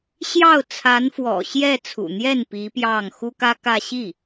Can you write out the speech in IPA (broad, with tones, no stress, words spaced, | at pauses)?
ɕjɑ˥˩ʊ̯ t͡sʰa˧˥nfwɔ̰˨˩ɕjɛ˥˩ t͡sʰṵ˨˩n̪jɛ˥˩n pi˧˥ pjɑ˥˩ŋ xu˥kä˥kä˥˧ ɕi˥˩